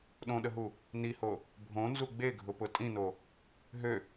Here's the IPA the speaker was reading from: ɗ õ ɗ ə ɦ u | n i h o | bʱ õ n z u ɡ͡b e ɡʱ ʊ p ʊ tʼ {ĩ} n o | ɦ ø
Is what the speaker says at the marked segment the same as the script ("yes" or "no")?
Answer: yes